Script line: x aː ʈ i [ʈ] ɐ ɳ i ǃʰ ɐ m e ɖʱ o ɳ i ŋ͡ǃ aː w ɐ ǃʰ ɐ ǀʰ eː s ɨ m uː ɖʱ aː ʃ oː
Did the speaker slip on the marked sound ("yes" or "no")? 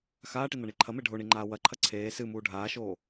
yes